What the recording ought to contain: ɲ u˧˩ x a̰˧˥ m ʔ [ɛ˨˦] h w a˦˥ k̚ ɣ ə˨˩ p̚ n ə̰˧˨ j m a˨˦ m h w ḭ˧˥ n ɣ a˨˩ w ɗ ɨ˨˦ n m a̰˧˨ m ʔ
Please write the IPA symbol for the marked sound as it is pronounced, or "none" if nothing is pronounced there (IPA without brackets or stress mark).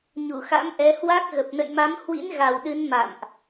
ɛ˨˦